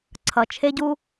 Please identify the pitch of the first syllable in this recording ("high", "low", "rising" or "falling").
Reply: low